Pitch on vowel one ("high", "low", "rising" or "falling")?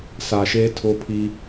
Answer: low